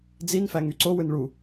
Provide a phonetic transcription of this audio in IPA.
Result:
d͡z i n f æ ŋ y ǀ o w ɯ n ɭ u

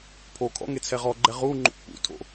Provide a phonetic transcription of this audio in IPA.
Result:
pʰ o kʰ ɔ̰ ŋ e t͡sʰ ɛ ʁ ɔ ɡ͡ǃ ɛ ʁ u ŋ͡ǃ ṵ kʷ p ṵ tʰ o̰

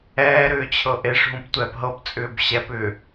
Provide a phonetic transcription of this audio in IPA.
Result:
ɛː ɾ ʏː t͡ɕʰ ɤ ʔ e ʂ ɦ ũ p tʷ ɛː p ɦ ɤ p t͡sʼ ʏː b ɕ ɛ p ʏː

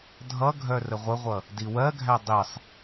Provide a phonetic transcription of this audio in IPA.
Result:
dʱ ʌ ɡʱ œ r ə ʁʷ ə ʁʷ ʌ | d i w ɜ ɡʱ æ dˤ i sˤ

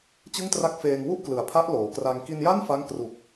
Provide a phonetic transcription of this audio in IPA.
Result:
t͡ɕ ɯ˥˩ ŋ t r a˥˩ k̚ f eː˧ ŋ w u˥˩ ʔ k l ɯ˩˦ a̯ pʰ a˦˥ ʔ l oː˩˦ k r a˧ ŋ k i˧ n j a˥˩ n f a˦˥ ŋ k r u˨˩ k̚

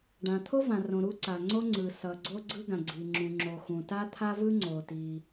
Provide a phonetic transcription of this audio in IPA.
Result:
ɖ ã˩ t̪ʰ o˥ v ã˩ r õ˩ ɾ u˥ ǀ a˩ ŋ͡ǀ o˥ ŋ͡ǀ ɯ˩ s ʌ˩ ɡ͡ǀ o˥ ɡ͡ǀ ɯ˥ ɡ ã˩ ɡ͡ǀ i˩ ŋ͡ǁ ũ˩ ŋ͡ǁ o˩ x ũ˩ t a˥ t̪ʰ a˥ v ɯ˥ ŋ͡ǀ o˩ t i˩

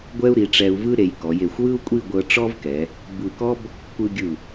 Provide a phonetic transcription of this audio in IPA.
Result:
ɡʷ ɛ˥ u̯ ɾ i˩˧ ʈ͡ʂ ɛ˧ u̯ v ɯ˥ ɾ e˩˧ j k ɔ˩˧ j e˧˩ xʷ w ɯ˥ u̯ kʷʼ i˥˧ ɡʷ ɤ˧ ʈ͡ʂ ɔ˥ v k ɛ˩˧ | b ɯ˧˩ k ɔ˥ b | kʷ ɯ˧ ɡʲ ɯ˧˩

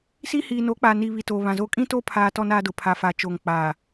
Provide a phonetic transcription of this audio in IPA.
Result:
s i˦ h iː˨ n o˨˦ k͡p a˨ n i˨ β i˨ t o˨ β ã˨ z o˦ kʼ ĩ˦ t o˦ pʰ aː˦ t ɔ˦ n aː˦ d ʊ˨ pʰ a˨ f a˨ t͡ʃ oː˨ ŋ k͡p aː˨

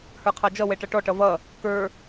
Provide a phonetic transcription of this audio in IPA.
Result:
h ə˞ qʰ ɑ d͡ʒ ʌ w ɛ ʈ ʌ ʈ ɔ ʈ ʌ v ʌ | k ə˞

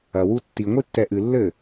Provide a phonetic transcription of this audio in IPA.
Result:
ɐ w u tː i ŋʷ i tː ɛ ʔ ɨ lː ɘ

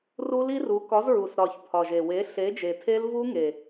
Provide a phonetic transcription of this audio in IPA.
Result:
r u˦˥ l i˦˥ r u˨˥ k ɒ˨˥ z ɹ u˨˩ s ɾ ɒ˨˩ ç pʰ ɒ˨˩ ʒ e˨˩ w e˨˥ ɬ e˨˥ d͡ʒ e˨˩ tʰ e˦˥ l v u˦˥ ŋ e˨˩

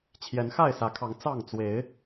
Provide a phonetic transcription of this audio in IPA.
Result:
t͡ɕʰ j ɛ˨˦ n x a˥˨ ɪ̯ s ä˨˦ kʰ ɑ˨˦ ŋ t͡s ɑ˥˨ ŋ t͡s w e˨˦ ɪ̯

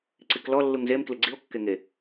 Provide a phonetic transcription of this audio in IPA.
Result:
ǀ i k l ɔ lː u ŋ z e m k l ɪ ɡ͡ǀ i o̯ kː e ŋ e

